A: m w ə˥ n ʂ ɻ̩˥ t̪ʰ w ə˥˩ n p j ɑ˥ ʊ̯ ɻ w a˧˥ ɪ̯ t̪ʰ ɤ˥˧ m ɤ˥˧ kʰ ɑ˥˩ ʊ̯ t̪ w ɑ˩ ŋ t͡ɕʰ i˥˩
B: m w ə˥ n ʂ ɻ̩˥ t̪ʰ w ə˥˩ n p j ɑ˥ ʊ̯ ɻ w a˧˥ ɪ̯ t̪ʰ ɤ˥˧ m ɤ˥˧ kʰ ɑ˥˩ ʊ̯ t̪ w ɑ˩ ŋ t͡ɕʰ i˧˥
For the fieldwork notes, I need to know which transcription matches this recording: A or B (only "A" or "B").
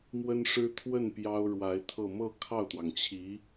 B